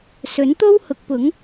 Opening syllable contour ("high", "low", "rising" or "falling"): rising